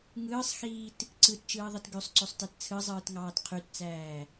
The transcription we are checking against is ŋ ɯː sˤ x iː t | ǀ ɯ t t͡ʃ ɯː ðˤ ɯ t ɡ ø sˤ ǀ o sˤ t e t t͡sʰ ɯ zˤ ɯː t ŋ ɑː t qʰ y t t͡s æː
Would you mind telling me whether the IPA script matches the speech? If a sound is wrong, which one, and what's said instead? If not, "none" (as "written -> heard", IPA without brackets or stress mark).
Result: none